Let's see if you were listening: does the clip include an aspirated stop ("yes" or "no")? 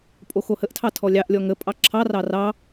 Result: yes